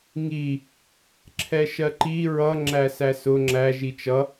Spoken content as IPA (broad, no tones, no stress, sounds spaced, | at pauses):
ŋ i | ǁʰ ɛ ʃ ɜ ǃ i ɹ ʌ ŋ͡ǁ æ s æ s ʊ ŋ͡ǁ æ ʒ i t͡ʃ ʌ